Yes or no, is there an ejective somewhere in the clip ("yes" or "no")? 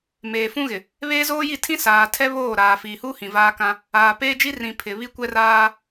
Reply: no